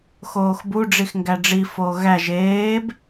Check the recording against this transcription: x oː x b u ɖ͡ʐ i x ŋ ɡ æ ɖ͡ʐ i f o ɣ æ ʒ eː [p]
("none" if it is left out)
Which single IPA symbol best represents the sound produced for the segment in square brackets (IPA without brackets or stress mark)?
b